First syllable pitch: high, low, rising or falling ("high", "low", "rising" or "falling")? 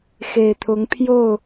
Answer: low